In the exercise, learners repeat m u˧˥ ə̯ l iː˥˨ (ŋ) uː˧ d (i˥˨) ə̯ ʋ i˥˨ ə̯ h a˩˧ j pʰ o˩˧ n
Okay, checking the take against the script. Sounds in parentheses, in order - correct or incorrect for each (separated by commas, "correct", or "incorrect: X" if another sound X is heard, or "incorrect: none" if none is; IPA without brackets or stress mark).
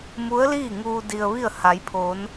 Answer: correct, incorrect: i˧